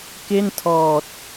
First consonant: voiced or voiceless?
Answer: voiceless